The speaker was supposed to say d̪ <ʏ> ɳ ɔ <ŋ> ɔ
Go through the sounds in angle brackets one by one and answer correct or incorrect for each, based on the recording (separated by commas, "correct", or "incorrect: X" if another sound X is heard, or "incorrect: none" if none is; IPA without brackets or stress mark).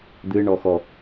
incorrect: ɨ, incorrect: x